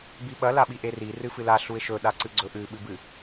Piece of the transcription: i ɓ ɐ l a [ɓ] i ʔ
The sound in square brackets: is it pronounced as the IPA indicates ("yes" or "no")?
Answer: yes